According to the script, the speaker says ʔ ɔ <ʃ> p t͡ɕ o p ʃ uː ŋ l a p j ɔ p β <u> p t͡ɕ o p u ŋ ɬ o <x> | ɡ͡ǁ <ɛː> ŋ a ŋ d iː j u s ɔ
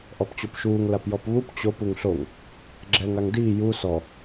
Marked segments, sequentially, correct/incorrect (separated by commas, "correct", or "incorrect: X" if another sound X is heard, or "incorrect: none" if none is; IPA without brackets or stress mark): incorrect: none, correct, incorrect: ŋ, correct